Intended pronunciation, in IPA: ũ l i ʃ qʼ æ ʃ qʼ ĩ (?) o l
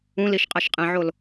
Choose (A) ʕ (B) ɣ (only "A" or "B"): A